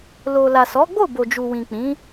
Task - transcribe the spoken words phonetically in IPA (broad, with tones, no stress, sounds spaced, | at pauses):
l o˨ l a˨ s ɔ˨˦ ɡ͡b o˦˨ b o˨ d͡ʒ u˨ w ĩ˨ k͡p ĩ˨˦